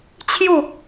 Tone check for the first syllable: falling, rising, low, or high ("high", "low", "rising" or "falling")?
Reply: falling